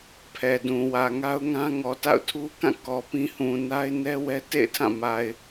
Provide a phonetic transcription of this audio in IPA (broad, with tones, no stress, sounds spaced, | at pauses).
pʰ ɛ˨ d ũ˨ w ä˨ ŋ a˦ ʊ̯ ŋ ã˦ ŋ ɔ˨ t a̰˦˨ ʊ̯ tʰ u˦ k ã˦˨ k ɔ˨ p ĩ˦ h ũ˨ n a˦ ɪ̯ n ɛ˦ w ɛ˦ t ḛ˦˨ ɪ̯ tʰ ã˦˨ m a˨ ɪ̯